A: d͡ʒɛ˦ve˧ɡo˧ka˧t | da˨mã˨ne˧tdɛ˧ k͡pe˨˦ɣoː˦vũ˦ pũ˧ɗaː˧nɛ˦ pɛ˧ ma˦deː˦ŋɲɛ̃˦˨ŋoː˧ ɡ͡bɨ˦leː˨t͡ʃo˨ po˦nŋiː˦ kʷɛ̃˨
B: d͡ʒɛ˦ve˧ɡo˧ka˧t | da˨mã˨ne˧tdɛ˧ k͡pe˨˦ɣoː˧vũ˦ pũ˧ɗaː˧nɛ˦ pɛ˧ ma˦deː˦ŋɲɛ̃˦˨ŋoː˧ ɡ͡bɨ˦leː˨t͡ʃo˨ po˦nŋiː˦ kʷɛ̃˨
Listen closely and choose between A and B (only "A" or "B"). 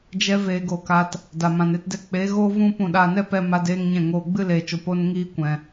A